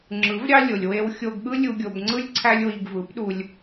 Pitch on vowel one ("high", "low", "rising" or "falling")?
rising